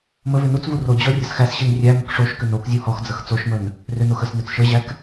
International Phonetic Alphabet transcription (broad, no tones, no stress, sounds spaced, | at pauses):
m ə v ʏ n u t͡s v u r o d͡ʑ ɔ rʲ ə s x æ s ɕ i n rʲ æ m ə k ʂ o ʃ k ʏ n o k zʲ u h ɔ x d͡z ə x t͡s o ʃ m ə n | r ʏ n o x ə s n ʏ t͡s ʃ ə ʑ æ k